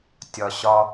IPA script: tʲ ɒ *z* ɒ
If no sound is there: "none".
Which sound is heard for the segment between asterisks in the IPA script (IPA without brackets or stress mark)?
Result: ɕ